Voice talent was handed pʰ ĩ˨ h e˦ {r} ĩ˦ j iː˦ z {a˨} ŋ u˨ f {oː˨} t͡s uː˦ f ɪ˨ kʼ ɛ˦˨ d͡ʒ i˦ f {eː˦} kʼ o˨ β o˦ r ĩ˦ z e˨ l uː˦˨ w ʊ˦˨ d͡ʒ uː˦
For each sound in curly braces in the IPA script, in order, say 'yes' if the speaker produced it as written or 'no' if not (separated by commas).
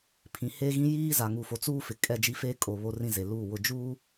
no, yes, no, yes